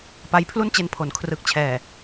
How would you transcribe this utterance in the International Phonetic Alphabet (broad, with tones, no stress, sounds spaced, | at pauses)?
p a˧ j pʰ l u˥˩ n t͡ɕ e˧ n pʰ o˩˦ n kʰ r ɯ˨˩ k̚ t͡ɕʰ ɛː˨˩